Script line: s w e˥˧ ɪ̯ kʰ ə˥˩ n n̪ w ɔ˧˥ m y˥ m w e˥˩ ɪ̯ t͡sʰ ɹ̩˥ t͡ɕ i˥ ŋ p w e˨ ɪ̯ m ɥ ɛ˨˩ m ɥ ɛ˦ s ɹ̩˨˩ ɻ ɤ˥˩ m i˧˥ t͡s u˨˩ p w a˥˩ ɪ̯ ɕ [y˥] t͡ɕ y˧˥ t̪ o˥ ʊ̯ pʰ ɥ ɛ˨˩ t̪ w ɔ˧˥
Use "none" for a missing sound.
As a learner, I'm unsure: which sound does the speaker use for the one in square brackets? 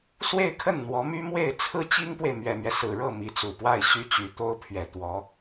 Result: y˥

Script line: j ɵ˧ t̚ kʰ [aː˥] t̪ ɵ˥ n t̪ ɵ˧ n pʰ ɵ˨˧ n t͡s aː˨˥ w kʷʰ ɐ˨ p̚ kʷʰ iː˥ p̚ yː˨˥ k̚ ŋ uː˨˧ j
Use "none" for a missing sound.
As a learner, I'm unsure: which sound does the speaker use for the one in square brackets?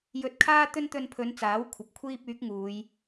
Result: aː˥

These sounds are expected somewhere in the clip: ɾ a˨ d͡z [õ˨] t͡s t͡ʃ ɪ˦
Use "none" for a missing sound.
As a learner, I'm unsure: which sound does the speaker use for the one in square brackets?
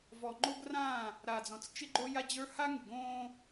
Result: ɔ̃˨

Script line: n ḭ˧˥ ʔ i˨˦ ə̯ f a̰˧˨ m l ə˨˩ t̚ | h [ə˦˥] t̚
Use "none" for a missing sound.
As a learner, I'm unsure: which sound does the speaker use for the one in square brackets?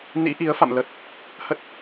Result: ə˦˥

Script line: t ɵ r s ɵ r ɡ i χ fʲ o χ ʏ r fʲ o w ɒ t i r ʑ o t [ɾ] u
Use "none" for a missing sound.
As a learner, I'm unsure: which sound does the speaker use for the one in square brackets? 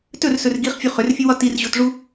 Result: ʐ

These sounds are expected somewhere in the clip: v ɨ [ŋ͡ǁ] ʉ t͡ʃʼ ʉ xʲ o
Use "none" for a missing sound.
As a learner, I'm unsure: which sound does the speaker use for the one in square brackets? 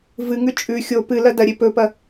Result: ŋ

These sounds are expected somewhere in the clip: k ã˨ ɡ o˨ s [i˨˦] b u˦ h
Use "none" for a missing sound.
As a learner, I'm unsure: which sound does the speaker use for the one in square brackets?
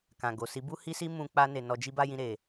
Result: i˨˦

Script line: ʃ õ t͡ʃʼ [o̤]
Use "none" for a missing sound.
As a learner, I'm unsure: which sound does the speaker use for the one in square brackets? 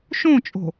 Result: o̤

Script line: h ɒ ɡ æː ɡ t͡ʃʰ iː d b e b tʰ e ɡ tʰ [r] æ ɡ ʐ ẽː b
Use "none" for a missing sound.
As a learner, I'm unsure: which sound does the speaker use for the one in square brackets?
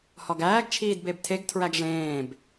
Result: ɹ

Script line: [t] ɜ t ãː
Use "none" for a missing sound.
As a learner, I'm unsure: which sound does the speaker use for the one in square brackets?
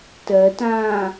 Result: t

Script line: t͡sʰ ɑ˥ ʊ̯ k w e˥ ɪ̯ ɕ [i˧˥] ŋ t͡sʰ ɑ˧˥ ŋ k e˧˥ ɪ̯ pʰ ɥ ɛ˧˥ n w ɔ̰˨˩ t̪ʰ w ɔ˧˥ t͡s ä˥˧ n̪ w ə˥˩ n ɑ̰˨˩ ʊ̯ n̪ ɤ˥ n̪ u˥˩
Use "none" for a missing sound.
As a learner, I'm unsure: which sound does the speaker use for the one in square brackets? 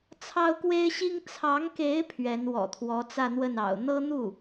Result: i˥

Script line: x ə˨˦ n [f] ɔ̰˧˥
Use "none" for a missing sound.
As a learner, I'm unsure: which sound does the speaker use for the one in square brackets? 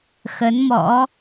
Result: m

